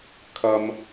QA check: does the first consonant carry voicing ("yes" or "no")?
no